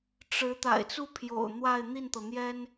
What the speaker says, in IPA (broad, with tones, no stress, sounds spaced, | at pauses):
ʈ͡ʂ ɻ̩˧˥ t̪ a̰˨˩ ɪ̯ t͡s u˥ pʰ j o̰˨˩ ʊ̯ n̪ w a˥˧ ɪ̯ n̪ i˥˩ n t̪ ɤ˩ n̪ j ɛ˥ n